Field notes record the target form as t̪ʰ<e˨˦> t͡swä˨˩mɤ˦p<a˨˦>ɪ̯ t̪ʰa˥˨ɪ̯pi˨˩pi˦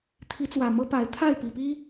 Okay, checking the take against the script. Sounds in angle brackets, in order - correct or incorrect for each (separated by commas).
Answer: incorrect, correct